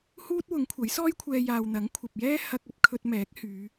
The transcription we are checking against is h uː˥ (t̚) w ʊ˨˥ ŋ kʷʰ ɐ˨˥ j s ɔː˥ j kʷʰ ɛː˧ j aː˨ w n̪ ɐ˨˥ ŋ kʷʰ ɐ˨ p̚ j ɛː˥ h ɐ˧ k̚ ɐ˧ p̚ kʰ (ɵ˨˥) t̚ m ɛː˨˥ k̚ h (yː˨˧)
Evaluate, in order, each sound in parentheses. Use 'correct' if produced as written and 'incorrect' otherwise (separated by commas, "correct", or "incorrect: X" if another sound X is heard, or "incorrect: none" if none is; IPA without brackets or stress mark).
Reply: correct, incorrect: ɵ˧, correct